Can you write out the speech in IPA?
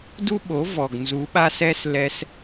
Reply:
du˦ɓo˨˦ vɔ˨ɡnzu˨˦ ɓa˦sɛ˦s lɛ˧s

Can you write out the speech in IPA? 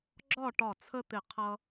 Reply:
ɡ͡ǁɒ˥˨ʈɒ˧˩t͡sʰə˦t̪ɪ˧˩ qʰʌ˦

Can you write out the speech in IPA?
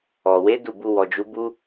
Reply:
ɔ˨ we˨˦ du˦˨bu˧wɔ˨d͡ʒu˨˦ bu˦

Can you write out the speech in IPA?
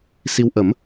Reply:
si˧w ʔə˨˩˦m

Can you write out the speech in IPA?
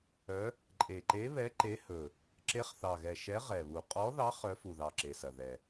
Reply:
œ˧˥ | ǃʼe˨˩ǃe˧˥βɛ˧˥ ǃe˧˥hɵ˨˩ | ǁe˧˥χθɑ˨˩ɣɛ˨˩ ʃɛ˧˥ ʁɛ˨˩βu˨˩ qʼɔ˧˥ðɑ˧˥χ œ˧˥fu˨˩ðɑ˨˩ ǁe˨˩sɐ˨˩ðɛ˨˩

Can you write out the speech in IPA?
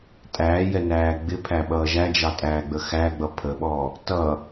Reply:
tʼæːjɛnæː ɡ͡bɪpʰæɓʌː ʒæd͡ʒɑtʼæːɡ͡bə xæɡ͡bʌ pʰəɓɔ | tʌ

